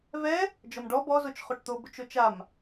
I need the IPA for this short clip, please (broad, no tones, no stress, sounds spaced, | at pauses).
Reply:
v ɛ | d͡ʒ ɔ m ɖ ɔ b ɔ z o t͡ʃ χ o ʈ t̪ o b ʊ t͡ʃ o t͡ʃ a m